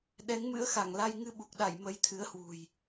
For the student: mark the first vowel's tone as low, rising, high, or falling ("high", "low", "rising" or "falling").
rising